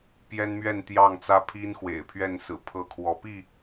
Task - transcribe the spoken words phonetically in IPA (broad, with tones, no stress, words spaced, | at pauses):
pjɛ˦nmɥɛ˥˨nt̪jɑ˥˨ŋ t͡sä˦pʰi˦n xwḛ˨˩ɪ̯pʰɥɛ˥˨nsɹ̩˨˩ pʰɤ˦kʰwɔ˨˦ pi˥˨